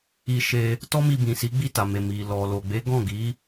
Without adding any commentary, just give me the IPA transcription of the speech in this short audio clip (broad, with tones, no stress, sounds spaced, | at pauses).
i˧ ʃ e˧ | t ɔ˦ m i˧ b ĩ˨ s i˨˦ ɡ͡b i˦˨ t a˨ m e˨ m i˨ l ɔ˨ l o˨ ɡ͡b e˨˦ ɡ ɔ̃˦˨ ɡ i˨˦